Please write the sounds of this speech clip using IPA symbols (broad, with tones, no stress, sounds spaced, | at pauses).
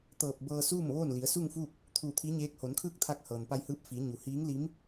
t̪ ɤː˧˩ p̚ b ɤː˧ s uː˥˨ m ʋ oː˥˨ n l i˩˧ ə̯ s u˥˨ ŋ f uː˥˨ k̚ | t̪ʰ uː˧˩ t̪ʰ iː˧˥ ɲ eː˧˥ k̚ h o˩˧ n kʰ ɯː˥˨ k̚ t̪ʰ a˧ k̚ h ɤː˩ n p a˧ j h ɯː˧˥ p̚ f iː˩˧ ɲ u˩˧ h iː˧˥ ŋ l i˧˥ m